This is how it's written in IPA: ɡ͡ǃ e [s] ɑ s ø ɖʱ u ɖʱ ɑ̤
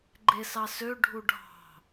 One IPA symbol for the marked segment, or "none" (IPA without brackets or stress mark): s